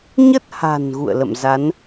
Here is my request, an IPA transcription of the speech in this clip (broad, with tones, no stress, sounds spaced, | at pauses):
ɲ ə˦˥ t̚ h a̤˨˩ n ɣ ṵ˧˨ ə̯ l ə̰˧˨ m z a˨˦ n